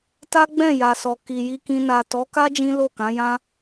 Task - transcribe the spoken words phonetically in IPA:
t a˦ ɡ͡b ɛ̃˦˨ j a˨ s ɔ˨ k i˨ j i˧ k ĩ˧ n a˨ t ɔ˨˦ k a˦ d͡ʒ ĩ˦ l o˦˨ k ã˨˦ j ã˦

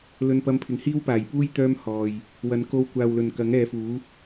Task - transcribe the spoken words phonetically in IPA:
l ɵ˧ n p ɐ˧ m pʰ ɪ˨˧ ŋ h iː˥ w p aː˨˩ j p uː˥ j t̪ œː˥ m h ɔː˨ j | w ɐ˨˥ n k o˧ w kʷ aː˨ w l ɵ˨˩ n k ɐ˨˥ ŋ ɛː˨˧ f uː˨˥

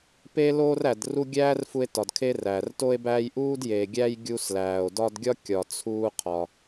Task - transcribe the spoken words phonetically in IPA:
p e˦ l oː˦ r æ˨ d r u˦ ɡʲ æː˥ r f u˦ e̯ t ɒ˨ d kʰ e˥ r æː˩ r t o˦ e̯ b æː˦ j ʔ uː˥ d j eː˨ ɡʲ æ˦ j ɡʲ u˦ s l æː˨ o̯ d ɒ˦ d ɡʲ ɒ˥ kʲ ɒ˨ t͡sʰ uː˦ qʰ ɒ˨

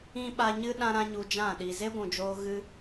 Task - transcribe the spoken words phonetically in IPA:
ĩ˦ ɓ a˧ ɲ ɨ˦ ɗ ã˦ ɾ ã˦ ɲ u˧ d͡ʒ ã˦˨ ɗ i˨ z e˦ ɡʷ ũ˨ d͡ʒ oː˧ ɣ ɨ˦

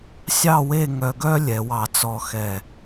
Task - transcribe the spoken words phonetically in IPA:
sʲ ɑ˥˧ w e˥˧ ŋ œ˧ ɡ œ˥ lʲ ɛ˩˧ w ɑ˧˩ t͡s ɔ˧ x ɛ˧˩

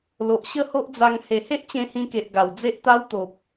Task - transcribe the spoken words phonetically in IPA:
l o˨ ʔ ɕ ə˥˧ h o˦ ʔ d͡z a˧ ŋ h e˨˩ h e˦ ʔ t͡ɕ ẽ˧ h ĩ˧ k e˨ ʔ ɡ a˨˩ w d͡z e˦ ʔ t̪ a˦ w t̪ o˨ p̚

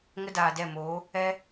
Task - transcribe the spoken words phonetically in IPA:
ŋ ə˦ d aː˨ d ɛ˦˨ m oː˨˦ | ɛ˦

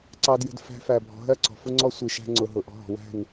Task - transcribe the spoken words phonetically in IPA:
ǀ ɑ˧ d j ə̤˧ d f æ̤˧ f æ˨ bʱ ɔ̤˨ ɦ ɜ˦˨ ǀ ɔ̤˨ f ʊ˦ ŋ͡ǀ ɔ˦ sʷ i˨ ʃ æ̤˧ ŋ͡ǀ ʊ˨ ɦ ʊ˨ ʔ ɔ̤˧ ɦ ɔ̤˨ w æ̤˦˨ n

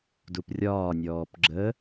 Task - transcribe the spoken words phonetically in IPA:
d u p rʲ ɒː nʲ ɔː p ɡ͡ǁ ə

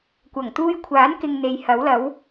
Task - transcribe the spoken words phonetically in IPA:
kʷ ɐ˨˩ ŋ t̪ uː˧ j kʷʰ aː˨˥ n k ɪ˧ ŋ n̪ e˨ j h ɐ˨˥ w l ɐ˨˥ w

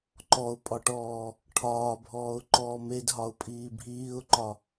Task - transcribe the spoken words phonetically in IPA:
ǃ ɔ ʊ̯ pʼ ɒ ʈ ɔː | ʈʰ ɒː bʱ ɔː ʊ̯ ǃ ɔː m e d ɦ ɒ ʊ̯ pʼ iː bʱ iː ʊ̯ ǃ ɒ

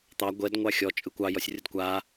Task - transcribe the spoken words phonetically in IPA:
t̪ ɑ ɡʷ ɛ d ŋʷ ɑ xʲ ɔ t͡ʃʼ ɯ kʷ ɑ j ɔ sʲ rʲ ə d kʷ a

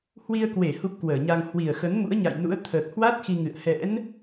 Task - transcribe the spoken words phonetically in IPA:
h w i˧ ə̯ k w e˧˩ h u˦˥ p̚ k w əː˧˩ ɲ a˧ ŋ h w i˨˩ ə̯ x ə˨˦ n m ṵ˧˥ ə̯ ɲ a̰˧˨ j n ṵ˧˥ ə̯ t̪ʰ əː˨˩ k̚ h w a˦˥ t̚ x i˧ ŋ ɨ̰˧˨ ə̯ h ɛ̰˧˥ n

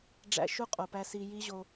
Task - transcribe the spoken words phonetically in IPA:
ɖ͡ʐ æ̰˦ ʃ u˦ qʼ o˨ p æ˧ s i˦ j i˦ ʑ o˧

